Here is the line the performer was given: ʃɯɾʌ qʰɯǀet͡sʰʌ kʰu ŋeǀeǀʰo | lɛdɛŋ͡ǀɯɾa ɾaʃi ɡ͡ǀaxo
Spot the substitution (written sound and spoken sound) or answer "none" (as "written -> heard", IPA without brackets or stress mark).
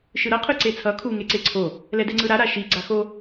none